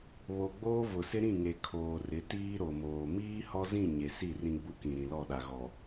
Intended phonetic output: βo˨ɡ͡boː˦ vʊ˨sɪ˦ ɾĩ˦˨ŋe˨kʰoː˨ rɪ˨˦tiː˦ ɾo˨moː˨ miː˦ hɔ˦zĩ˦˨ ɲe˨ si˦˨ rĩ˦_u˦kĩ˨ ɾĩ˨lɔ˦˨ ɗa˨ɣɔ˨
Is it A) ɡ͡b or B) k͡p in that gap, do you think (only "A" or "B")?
A